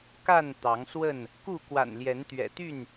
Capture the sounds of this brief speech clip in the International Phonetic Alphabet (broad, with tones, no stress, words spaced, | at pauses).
ka˥˨n t̪ɑ˨˦ŋswə˥˨n | ku˥˨ kwa̰˨˩nljɛ˨˦nt̪ɥɛ̰˨˩t̪y˥˨n